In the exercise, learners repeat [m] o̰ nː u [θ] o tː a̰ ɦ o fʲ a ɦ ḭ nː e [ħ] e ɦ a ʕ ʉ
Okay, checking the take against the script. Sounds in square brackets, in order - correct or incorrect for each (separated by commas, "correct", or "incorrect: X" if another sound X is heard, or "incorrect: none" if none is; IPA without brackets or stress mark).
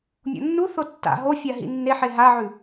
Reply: incorrect: mʲ, correct, correct